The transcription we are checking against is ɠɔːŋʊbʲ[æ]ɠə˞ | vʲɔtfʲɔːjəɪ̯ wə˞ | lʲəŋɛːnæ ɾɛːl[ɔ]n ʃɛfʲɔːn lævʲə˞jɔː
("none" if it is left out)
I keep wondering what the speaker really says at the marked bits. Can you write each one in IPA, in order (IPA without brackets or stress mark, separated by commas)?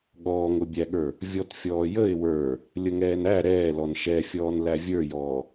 æ, ɔ